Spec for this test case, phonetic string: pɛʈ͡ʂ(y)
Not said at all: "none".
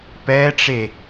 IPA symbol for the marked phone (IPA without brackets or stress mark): e